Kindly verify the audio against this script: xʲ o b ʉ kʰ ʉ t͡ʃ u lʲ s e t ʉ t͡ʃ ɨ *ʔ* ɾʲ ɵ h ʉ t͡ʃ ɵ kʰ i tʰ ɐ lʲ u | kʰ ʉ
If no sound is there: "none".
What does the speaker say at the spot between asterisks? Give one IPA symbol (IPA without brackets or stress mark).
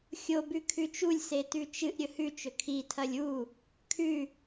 ʔ